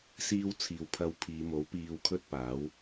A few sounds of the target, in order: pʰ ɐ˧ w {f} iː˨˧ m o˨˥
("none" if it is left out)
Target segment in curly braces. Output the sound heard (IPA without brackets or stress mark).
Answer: pʰ